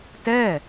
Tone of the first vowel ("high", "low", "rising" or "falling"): falling